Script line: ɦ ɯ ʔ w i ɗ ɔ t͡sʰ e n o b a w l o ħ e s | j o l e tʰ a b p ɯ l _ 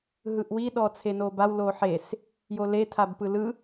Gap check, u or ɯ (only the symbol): ɯ